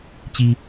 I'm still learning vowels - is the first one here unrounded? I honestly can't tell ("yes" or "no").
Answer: yes